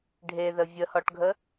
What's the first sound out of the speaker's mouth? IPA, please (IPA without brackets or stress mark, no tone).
ɖʱ